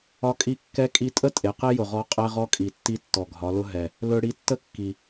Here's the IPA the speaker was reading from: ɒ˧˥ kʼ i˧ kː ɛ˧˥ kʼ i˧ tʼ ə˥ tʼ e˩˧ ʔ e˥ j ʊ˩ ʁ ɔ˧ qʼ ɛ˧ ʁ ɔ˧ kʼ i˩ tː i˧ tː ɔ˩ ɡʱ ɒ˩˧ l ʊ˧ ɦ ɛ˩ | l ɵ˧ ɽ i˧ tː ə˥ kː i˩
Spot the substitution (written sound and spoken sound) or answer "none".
ʔ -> q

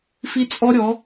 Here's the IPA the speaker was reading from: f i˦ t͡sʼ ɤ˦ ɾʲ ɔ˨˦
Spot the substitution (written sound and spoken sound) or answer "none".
ɤ˦ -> ɔ˦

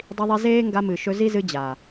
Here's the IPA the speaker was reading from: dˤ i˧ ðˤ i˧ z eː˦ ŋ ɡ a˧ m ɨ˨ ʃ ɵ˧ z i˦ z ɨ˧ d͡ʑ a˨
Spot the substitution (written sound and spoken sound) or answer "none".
none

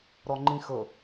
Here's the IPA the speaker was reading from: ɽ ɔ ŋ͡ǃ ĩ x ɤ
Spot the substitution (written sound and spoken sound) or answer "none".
ɽ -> ɾ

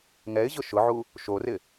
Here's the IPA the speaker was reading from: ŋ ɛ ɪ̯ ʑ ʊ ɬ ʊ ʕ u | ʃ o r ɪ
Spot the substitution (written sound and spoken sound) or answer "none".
ɬ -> ʃ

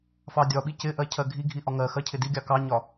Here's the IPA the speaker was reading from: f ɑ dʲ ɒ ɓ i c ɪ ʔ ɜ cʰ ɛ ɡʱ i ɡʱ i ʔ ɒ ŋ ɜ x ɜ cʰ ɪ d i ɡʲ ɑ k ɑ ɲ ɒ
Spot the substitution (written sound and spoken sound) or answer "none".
ɛ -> ɜ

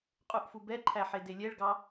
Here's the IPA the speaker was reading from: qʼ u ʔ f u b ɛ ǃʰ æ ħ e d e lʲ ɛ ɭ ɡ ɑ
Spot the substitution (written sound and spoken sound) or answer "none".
none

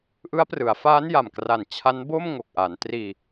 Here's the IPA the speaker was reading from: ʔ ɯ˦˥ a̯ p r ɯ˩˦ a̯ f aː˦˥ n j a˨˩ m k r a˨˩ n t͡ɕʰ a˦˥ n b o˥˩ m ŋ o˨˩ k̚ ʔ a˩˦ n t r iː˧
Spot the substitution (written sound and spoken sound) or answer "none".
none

